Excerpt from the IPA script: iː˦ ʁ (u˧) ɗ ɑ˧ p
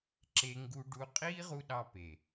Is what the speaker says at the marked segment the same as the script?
yes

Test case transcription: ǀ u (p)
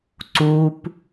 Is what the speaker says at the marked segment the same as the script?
yes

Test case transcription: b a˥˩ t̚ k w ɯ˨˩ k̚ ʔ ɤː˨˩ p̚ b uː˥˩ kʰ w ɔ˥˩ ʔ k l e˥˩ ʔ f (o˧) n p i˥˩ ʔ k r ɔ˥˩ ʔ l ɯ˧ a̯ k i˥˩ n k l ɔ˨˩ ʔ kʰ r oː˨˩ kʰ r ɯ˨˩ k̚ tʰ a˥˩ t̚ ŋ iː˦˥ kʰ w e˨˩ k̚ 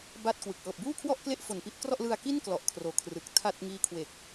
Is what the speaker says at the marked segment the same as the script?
no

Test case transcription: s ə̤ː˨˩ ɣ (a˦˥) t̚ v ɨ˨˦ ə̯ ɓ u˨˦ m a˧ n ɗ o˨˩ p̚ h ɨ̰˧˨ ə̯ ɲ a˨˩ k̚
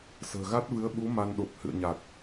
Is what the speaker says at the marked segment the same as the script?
yes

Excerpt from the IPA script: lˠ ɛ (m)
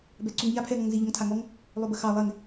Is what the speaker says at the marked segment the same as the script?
no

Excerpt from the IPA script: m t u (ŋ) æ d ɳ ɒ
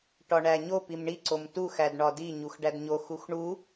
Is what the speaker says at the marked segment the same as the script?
no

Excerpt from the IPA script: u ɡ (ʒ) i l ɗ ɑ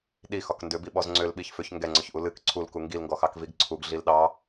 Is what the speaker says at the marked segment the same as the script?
no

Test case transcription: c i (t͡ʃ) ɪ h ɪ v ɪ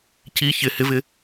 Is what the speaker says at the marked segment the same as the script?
no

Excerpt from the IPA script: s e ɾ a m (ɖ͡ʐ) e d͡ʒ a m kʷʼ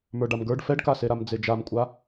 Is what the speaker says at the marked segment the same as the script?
no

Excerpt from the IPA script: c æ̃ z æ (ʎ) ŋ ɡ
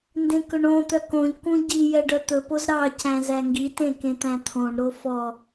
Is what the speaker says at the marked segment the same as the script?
no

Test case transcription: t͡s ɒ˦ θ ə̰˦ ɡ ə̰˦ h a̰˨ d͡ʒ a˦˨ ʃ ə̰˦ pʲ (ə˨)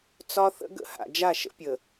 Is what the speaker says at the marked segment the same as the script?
yes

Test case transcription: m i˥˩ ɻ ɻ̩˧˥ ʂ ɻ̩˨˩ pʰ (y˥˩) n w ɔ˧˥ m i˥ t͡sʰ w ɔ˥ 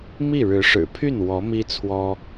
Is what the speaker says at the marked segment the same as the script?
yes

